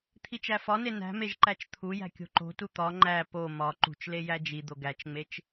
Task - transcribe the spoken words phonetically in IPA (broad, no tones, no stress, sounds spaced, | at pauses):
t̪ʰ i t͡ʃ æ f ɒ n e n æ̤ m e ʒ ǃ æ t͡ʃ t̪ʰ u j æ̤ kʲ o̤ ǃ o̤ t u t̪ ɒ ŋ͡ǃ æ p o m ɒ ǃ ṳ t͡ʃ l e j æ d͡ʒ i d̪ o ɡ æ t͡ʃ ŋ͡m e t͡ʃ